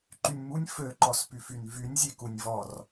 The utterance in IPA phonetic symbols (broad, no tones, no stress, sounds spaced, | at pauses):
ǃ y nʲ m u nʲ f ø ǃ ɔ s p y f y n v y nʲ zʲ e k u nʲ v ɔ r